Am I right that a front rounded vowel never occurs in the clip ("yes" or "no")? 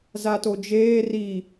yes